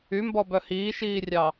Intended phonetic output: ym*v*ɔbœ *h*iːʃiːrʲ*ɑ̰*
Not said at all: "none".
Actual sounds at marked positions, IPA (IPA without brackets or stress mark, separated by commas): b, h, ɑ